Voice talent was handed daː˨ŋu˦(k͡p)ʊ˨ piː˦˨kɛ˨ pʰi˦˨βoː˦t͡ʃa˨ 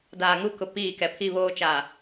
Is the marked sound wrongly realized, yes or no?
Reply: yes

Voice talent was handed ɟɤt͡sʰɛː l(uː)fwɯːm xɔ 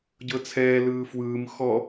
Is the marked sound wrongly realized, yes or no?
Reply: yes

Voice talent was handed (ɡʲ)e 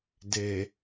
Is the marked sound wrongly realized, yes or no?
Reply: yes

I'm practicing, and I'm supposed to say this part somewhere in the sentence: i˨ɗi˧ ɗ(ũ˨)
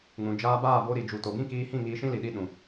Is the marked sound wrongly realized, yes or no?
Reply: no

